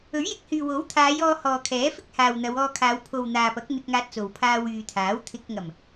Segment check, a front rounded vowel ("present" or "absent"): present